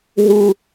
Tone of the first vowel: high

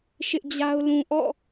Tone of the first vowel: high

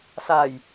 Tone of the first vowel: low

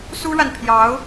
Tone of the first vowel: high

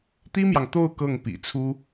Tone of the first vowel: high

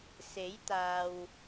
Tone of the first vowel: rising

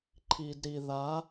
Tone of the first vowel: low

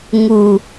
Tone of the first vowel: low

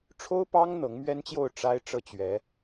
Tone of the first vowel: high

